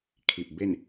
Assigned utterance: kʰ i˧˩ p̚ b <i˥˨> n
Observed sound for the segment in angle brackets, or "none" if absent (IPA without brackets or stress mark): e˥˨